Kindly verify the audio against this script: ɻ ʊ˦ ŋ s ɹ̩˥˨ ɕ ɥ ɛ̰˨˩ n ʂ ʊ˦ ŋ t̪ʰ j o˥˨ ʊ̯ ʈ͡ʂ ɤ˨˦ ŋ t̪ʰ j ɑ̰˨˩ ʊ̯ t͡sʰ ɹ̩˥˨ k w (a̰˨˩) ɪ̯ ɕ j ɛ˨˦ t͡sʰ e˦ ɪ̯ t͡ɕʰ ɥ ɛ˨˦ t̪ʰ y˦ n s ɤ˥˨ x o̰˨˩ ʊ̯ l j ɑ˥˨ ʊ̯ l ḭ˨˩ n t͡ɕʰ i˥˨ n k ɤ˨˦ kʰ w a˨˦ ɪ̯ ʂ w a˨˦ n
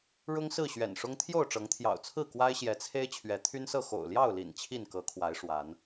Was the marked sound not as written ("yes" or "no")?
yes